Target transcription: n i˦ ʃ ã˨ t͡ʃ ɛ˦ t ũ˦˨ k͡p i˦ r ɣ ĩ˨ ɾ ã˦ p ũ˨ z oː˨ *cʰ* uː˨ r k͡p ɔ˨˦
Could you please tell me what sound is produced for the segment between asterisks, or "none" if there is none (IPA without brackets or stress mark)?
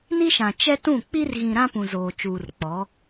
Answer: t͡ʃ